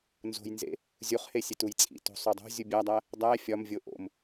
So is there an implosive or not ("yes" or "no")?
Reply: no